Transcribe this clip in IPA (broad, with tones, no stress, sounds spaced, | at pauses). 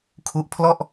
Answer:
kʰ u˦˥ ʔ pʰ l ɔ˥˩ ʔ